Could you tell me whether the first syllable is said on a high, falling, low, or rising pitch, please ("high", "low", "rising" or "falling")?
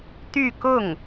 falling